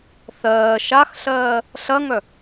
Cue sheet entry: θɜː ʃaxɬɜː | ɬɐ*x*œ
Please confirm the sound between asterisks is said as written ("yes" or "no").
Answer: no